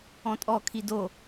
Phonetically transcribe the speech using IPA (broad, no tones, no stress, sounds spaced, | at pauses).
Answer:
ɔ̃ tʼ ɔ kʰ i d o